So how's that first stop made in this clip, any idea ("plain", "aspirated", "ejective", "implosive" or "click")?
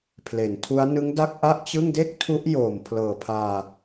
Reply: aspirated